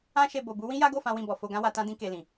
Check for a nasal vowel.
present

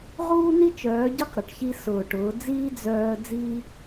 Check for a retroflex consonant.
present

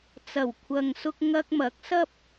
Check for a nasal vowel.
absent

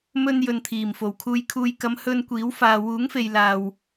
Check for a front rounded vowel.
absent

